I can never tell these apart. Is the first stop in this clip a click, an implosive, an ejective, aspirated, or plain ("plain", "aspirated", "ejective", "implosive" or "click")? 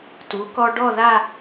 plain